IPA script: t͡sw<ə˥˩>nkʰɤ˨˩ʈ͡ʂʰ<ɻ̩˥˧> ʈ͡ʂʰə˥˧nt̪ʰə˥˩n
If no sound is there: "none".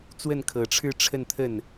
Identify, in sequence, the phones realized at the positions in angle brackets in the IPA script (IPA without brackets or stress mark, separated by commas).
ə˥˩, ɻ̩˥˧